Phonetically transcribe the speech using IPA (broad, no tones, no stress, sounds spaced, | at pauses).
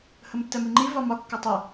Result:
h ə m tː ɛ m i ŋ͡ǃ i v ɒ m ɒ kː ʌ tˤ ɛ